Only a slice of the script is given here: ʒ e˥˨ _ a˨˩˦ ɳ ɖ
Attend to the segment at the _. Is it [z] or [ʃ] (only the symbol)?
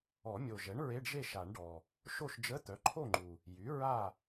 ʃ